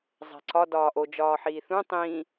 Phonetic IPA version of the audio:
zˤ æ̤ ǀ ɒ d ɒː ʔ o d͡ʒ ɒː ħ iː θ ũ tˤ ĩ

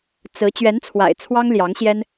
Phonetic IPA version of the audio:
t͡s ɹ̩˧˥ t͡ɕ ɥ ɛ˧˥ n t͡sʰ w a̰˨˩ ɪ̯ t͡sʰ w ɑ˥ ŋ l j ɑ˧˥ ŋ ɕ j ɛ˥ n

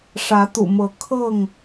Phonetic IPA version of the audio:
ʂ ä˨˦ t̪ ṵ˨˩ m ɤ˨˦ kʰ ɤ˥˨ ŋ

